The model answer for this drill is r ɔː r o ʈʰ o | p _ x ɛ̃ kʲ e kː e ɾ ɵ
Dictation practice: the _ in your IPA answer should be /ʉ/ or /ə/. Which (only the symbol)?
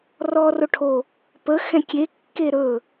ə